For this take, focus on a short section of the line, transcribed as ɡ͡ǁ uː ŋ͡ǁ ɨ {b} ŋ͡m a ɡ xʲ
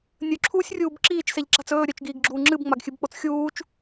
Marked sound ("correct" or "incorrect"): correct